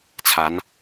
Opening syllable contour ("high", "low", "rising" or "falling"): rising